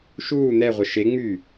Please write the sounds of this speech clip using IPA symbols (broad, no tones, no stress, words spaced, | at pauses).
ʃuː n̪ɛʁʷə ʃe ŋ͡my